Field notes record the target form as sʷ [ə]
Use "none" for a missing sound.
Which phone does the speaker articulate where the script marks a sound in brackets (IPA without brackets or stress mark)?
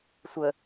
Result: ə